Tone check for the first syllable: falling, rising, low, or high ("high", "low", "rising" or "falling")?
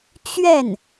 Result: falling